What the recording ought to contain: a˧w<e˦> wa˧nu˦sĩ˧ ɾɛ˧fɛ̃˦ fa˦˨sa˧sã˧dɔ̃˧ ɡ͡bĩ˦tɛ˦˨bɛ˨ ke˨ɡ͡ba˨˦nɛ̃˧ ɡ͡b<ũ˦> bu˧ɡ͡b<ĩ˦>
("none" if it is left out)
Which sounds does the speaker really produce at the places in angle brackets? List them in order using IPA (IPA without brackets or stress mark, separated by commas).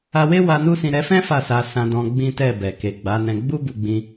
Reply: e˦, u˦, ĩ˧